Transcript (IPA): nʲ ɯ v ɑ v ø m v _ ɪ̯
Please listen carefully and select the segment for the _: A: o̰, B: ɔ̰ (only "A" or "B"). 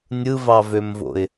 A